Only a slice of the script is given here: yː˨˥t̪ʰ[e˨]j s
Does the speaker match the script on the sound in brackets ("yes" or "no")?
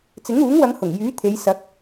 no